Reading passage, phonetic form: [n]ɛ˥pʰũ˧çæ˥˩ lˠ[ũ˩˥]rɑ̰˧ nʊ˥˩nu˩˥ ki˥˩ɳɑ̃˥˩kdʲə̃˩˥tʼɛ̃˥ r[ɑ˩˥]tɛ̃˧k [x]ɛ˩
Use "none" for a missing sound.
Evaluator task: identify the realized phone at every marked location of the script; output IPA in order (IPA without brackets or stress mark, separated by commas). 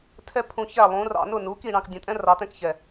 tʰ, ũ˩˥, ɑ˩˥, ç